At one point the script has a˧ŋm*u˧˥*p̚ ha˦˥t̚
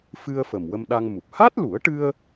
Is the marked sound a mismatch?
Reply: yes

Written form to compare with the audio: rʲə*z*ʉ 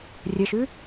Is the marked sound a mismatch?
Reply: yes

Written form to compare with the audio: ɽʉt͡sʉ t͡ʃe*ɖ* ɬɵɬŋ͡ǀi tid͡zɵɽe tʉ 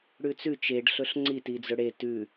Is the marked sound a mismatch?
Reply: no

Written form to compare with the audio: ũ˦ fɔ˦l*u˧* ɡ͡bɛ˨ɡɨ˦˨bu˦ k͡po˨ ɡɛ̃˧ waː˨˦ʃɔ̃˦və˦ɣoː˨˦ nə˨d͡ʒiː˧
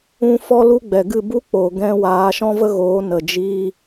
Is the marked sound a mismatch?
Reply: yes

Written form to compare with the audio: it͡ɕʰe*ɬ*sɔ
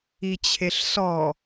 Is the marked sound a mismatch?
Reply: no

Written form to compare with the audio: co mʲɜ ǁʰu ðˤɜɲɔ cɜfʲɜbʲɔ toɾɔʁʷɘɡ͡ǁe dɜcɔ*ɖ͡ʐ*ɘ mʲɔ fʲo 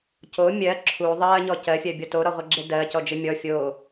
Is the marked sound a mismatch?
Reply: yes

